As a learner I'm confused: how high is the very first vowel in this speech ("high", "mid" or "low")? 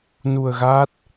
high